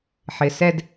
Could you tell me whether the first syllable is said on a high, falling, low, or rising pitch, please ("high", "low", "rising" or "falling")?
low